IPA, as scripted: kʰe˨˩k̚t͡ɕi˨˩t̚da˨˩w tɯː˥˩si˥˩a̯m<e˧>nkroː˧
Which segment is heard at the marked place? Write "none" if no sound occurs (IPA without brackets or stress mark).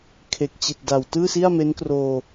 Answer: e˦˥